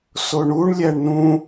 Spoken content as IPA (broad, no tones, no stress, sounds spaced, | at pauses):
s o ɳ u ɳ lʲ æ ɳ n ũ